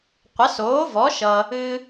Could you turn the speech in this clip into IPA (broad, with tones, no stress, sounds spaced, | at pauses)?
qʷ ə˨˥ s oː˨˥ v ɔ˨˥ ʃ ʌ˧ | ɨ˧